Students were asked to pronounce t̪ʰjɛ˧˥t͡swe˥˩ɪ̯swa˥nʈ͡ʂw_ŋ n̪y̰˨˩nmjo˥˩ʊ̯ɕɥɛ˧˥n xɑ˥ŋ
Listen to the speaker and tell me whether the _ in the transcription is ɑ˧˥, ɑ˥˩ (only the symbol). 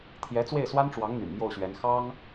ɑ˧˥